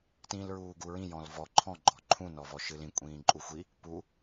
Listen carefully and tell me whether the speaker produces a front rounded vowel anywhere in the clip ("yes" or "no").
no